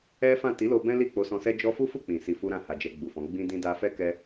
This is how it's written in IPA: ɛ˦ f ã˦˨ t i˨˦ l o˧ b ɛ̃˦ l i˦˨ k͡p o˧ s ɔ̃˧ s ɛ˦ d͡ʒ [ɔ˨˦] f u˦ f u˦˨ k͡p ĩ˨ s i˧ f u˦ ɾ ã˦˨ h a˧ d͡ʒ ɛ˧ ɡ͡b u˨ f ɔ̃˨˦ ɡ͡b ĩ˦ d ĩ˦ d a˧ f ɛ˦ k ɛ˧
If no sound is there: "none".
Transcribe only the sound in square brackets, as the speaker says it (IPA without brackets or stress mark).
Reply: ɔ˦